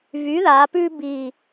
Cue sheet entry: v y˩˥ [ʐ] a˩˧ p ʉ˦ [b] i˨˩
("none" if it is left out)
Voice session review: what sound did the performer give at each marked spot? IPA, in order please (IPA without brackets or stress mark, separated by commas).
ð, b